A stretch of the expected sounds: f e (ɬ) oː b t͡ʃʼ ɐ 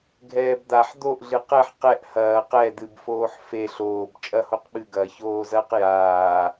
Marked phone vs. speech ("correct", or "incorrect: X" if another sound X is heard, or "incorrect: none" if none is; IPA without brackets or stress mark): correct